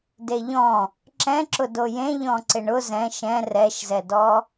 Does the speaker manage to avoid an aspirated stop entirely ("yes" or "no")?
yes